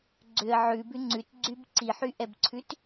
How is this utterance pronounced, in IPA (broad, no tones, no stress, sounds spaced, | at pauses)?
ɡ͡ǀ ʏ ə̯ ʕ ʉ b ʉ ŋ͡ǀ ʉ t ɡ͡ǀ y b ǀ i ħ y ʔ ɛ b ǀʰ ʉ t